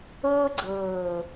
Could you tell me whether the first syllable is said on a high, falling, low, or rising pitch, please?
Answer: high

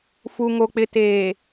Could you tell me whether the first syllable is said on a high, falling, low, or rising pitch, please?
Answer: low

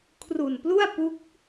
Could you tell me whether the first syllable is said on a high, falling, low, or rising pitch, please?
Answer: low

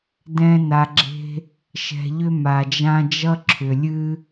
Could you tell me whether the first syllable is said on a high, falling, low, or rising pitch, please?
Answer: high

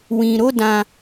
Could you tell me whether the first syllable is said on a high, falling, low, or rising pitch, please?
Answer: low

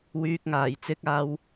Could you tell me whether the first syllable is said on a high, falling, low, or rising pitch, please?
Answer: low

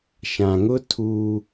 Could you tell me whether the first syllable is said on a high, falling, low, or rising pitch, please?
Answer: low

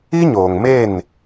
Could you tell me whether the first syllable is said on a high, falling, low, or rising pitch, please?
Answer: high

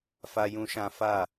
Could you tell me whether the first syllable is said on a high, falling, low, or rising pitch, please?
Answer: high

